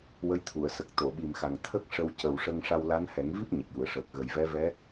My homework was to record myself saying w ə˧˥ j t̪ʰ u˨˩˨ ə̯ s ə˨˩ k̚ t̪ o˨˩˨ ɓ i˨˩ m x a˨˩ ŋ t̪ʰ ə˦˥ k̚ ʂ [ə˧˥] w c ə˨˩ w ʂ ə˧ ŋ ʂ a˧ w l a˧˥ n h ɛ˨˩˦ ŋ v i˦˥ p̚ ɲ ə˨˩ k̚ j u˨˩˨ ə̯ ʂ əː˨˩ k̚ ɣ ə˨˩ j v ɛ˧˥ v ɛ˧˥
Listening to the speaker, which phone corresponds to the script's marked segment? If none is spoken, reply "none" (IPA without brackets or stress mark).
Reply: ə˧